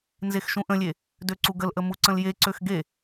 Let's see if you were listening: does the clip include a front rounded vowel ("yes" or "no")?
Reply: yes